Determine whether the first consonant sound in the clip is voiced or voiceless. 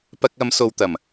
voiceless